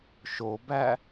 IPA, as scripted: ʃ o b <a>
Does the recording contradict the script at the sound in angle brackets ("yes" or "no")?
yes